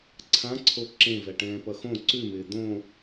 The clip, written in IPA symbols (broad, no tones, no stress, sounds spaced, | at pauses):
ǀʰ ã ǀʰ o ǁ ẽ v ɛ ʈ ɛ̃ː p ʌ x õ ǀ ʉ m ɪː d̪ õ